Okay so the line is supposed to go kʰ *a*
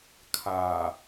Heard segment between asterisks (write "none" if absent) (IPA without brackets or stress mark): aː